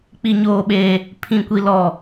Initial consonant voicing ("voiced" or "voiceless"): voiceless